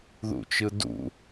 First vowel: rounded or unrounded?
rounded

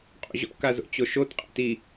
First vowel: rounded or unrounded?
rounded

